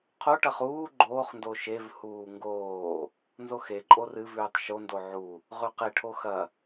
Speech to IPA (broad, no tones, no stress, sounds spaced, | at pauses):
qʰ o ʈ ɐ χ uː ɡ͡ǃ oː χ n d o ʃ e v h uː ŋ ɡ oː | n z o x e ǃʼ o r ɨ v ʉː tˤ ʃ o n d o ʕ u | ʁ ʉ q e ʈʰ o x ɐ